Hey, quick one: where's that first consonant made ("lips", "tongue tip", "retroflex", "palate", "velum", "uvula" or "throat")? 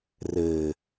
tongue tip